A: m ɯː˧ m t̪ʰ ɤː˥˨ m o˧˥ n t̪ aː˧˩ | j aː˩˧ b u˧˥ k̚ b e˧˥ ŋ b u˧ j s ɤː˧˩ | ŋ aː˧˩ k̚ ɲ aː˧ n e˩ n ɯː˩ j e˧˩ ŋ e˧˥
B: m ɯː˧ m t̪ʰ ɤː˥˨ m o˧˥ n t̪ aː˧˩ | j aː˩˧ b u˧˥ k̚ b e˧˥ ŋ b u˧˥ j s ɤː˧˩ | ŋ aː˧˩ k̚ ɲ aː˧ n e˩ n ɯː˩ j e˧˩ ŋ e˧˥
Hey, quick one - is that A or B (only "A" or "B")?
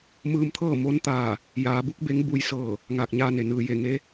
A